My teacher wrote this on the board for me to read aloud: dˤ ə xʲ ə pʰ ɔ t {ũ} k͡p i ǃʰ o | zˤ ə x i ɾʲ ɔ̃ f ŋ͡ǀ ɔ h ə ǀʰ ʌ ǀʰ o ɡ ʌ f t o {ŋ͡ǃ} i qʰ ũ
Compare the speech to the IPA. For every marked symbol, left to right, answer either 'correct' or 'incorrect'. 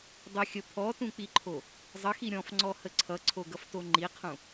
correct, correct

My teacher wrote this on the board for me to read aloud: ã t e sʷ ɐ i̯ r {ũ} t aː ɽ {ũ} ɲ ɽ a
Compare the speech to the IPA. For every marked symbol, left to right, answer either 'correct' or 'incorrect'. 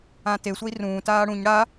incorrect, correct

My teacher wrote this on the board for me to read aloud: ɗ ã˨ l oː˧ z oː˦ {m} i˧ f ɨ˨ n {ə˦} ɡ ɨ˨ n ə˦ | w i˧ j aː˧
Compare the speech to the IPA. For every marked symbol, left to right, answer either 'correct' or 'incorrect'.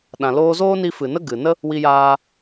incorrect, correct

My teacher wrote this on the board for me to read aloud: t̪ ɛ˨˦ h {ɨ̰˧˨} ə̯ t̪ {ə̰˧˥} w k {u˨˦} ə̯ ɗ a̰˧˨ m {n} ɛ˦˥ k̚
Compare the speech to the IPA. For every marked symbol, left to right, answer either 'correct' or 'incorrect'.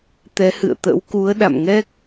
correct, correct, correct, incorrect

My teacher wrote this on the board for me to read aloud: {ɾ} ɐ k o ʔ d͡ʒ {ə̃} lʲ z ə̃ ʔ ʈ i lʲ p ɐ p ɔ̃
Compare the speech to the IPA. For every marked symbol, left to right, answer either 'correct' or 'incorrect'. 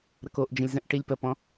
correct, correct

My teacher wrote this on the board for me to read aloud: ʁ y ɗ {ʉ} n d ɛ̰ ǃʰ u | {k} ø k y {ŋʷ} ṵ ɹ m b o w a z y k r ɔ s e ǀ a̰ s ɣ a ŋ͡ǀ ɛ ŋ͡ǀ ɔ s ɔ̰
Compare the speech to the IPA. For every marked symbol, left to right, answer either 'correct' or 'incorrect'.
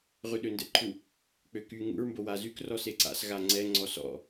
incorrect, incorrect, incorrect

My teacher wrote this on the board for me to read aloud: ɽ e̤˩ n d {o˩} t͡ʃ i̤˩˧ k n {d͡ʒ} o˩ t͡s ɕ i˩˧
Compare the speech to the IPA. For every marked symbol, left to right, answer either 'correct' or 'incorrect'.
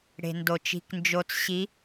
correct, correct

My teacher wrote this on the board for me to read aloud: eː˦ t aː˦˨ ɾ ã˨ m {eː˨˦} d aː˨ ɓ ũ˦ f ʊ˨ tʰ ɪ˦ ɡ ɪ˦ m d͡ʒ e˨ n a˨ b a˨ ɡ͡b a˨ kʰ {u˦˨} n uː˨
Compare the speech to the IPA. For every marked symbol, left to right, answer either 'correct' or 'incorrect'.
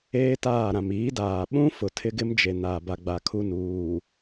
incorrect, correct

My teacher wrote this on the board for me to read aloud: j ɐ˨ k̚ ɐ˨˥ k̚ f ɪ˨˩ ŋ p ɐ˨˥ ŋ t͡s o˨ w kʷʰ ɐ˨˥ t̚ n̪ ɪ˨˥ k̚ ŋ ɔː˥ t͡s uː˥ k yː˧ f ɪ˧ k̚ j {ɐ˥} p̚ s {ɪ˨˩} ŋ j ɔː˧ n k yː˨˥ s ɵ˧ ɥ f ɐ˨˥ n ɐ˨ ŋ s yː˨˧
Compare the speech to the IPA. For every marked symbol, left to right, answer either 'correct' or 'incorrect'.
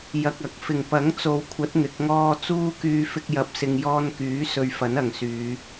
incorrect, incorrect

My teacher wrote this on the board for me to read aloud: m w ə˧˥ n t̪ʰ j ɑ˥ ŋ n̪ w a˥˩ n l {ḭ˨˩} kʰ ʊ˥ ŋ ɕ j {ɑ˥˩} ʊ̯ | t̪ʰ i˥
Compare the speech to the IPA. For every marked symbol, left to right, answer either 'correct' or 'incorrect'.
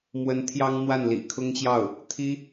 correct, correct

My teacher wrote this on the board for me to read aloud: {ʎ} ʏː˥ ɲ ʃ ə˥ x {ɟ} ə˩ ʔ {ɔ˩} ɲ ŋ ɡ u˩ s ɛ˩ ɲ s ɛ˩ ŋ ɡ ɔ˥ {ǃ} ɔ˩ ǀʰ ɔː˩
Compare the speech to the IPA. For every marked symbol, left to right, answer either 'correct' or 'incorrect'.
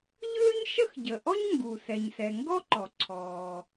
correct, correct, incorrect, correct

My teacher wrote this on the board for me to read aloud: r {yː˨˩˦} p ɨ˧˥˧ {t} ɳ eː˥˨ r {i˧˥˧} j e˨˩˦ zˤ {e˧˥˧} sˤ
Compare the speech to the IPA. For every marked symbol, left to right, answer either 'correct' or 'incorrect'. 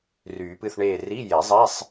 correct, incorrect, correct, correct

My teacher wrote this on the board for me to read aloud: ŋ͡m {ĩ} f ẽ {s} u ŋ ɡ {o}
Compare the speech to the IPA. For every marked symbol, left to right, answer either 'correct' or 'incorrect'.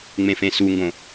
incorrect, correct, incorrect

